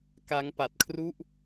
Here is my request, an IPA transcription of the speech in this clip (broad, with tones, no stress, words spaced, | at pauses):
ka˦˥ŋpa˨˩t̚kʰru˥˩ʔ